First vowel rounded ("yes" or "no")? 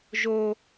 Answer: yes